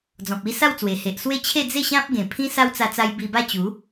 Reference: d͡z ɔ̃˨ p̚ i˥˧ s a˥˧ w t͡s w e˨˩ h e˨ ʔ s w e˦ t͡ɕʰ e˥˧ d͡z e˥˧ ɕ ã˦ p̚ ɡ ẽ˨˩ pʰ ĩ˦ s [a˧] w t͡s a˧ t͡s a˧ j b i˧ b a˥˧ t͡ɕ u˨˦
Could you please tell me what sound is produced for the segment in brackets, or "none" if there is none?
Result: a˦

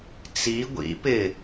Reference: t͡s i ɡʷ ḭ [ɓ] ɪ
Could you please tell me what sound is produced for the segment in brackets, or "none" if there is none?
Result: p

